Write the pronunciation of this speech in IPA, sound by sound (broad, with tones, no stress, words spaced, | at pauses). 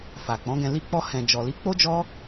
fa˨k͡pɔ̃˨˦ɡɛ̃˧ li˧k͡pɔ˧hɛ̃˨ d͡ʒɔ˨li˨˦k͡po˦d͡ʒɔ˦